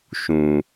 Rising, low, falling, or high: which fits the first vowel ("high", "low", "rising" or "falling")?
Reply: low